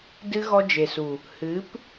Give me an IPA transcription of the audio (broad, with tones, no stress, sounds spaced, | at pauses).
d ɨ˦ ɣ ɔ˦ d͡ʒ e˨ s u˨ | h ɨ˨˦ p